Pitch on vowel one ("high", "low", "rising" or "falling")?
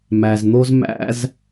low